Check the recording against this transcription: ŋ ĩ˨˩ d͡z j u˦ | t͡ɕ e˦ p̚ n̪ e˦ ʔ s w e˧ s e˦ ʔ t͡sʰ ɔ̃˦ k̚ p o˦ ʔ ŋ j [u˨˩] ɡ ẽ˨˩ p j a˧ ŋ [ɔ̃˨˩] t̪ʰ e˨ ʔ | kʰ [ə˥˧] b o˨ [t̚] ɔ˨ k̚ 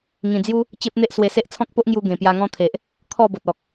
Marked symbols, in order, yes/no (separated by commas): no, no, no, yes